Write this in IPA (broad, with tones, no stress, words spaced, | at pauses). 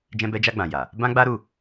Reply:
d͡ʒɛ̃˧bɛ˧d͡ʒa˧ɡ͡bã˨ ja˨ | bã˦ɡ͡ba˦ɾu˦˨